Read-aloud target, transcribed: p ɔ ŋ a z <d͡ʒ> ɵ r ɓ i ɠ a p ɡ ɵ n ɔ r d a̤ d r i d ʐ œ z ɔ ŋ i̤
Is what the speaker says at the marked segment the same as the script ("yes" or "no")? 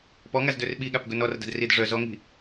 no